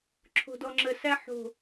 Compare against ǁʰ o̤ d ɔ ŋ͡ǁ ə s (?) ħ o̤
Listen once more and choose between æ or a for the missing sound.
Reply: æ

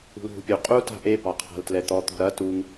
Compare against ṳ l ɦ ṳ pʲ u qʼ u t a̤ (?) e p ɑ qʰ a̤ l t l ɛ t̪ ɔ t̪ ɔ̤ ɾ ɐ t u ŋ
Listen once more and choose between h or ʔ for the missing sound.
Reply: ʔ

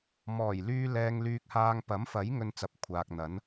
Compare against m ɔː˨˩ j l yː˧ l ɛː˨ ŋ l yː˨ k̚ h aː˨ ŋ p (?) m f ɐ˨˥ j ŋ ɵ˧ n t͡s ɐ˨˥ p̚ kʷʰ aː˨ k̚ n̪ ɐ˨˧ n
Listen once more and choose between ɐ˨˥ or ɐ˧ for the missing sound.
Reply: ɐ˨˥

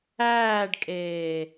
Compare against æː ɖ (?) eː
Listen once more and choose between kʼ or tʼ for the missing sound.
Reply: kʼ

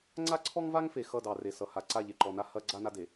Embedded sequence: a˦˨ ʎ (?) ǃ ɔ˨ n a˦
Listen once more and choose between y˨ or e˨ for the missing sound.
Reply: e˨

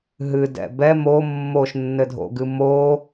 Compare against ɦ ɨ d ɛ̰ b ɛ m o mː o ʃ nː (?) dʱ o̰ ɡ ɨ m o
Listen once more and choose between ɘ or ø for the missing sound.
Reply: ɘ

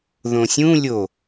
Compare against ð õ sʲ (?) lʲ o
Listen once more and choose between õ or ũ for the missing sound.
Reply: ũ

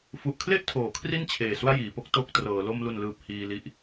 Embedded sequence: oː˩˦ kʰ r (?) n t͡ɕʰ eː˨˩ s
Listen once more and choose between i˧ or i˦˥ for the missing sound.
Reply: i˦˥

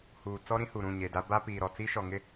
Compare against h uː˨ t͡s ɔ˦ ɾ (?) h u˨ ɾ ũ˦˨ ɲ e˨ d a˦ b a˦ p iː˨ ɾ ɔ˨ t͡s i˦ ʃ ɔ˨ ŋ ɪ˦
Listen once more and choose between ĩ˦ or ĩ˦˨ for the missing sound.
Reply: ĩ˦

